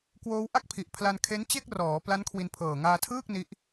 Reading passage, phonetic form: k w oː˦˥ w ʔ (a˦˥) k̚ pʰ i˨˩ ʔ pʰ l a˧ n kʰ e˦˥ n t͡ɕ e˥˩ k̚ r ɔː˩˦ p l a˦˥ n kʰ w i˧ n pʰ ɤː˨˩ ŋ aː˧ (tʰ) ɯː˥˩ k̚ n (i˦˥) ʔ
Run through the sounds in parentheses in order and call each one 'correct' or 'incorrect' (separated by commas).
incorrect, correct, correct